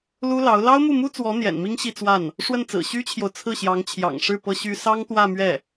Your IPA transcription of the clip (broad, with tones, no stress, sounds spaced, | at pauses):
l u˥ l ɑ˧˥ ʊ̯ l ɑ˥ ʊ̯ m u˥˩ m u˥ t͡s w ɔ˧˥ n̪ j ɛ̰˨˩ n m i˥ ŋ ɕ i˥˧ t͡s w a˥˩ n | ʂ w ə˥˩ n t͡s ɹ̩˨˩ ɕ y˥ t͡ɕʰ j o˨ ʊ̯ t͡sʰ ɹ̩˥˩ ɕ j ɑ˧˥ ŋ t͡ɕʰ j ɑ̰˨˩ ŋ ʂ ɻ̩˥˩ p ɤ˥ ɕ y˥ s ɑ˥ ŋ t̪ w ä˥˧ m ɥ ɛ˥˩